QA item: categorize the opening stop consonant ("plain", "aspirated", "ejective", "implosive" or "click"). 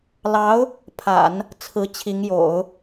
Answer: aspirated